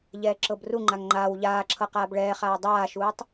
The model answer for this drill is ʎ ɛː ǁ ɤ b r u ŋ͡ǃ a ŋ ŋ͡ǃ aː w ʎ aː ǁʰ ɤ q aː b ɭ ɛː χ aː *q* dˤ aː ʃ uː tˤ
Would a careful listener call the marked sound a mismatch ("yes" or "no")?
yes